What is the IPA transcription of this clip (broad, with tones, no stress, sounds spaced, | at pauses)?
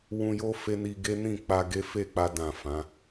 w ũ˧ j o˦ f e˦ n i˧ ɡ e˦ n ĩ˦˨ k͡p a˧ ɡ e˦ f e˦˨ k͡p a˧ d ã˨ f ã˨˦